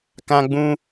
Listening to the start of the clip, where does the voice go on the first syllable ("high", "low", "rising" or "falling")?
high